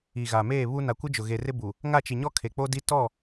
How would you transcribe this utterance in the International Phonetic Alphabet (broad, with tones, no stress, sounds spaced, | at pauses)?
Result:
i˨ ɣ a˨ m eː˦˨ β u˦ n a˨ kʷ ɪ˦ d͡ʒ ʊ˨ ɣ e˨ r ɪ˦ b u˨ | ŋ a˦˨ t͡ʃ i˨ ɲ ɔ˦ kʰ e˨ k͡p o˦ d i˦ t ɔ˦˨